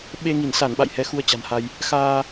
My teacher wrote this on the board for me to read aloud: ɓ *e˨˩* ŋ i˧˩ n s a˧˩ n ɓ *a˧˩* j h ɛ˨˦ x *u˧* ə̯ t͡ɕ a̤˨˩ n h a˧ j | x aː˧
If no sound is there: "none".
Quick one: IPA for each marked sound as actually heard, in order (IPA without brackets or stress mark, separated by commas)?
e˧, a̰˧˨, u˧